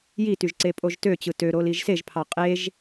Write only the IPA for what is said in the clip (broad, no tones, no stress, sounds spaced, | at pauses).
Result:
j i t y ʒ ǀ e pʼ o ʒ t ø t͡ɕ ɯ t ø ɾ o l i ʒ s e ʒ pʰ ɑ qʼ e ʒ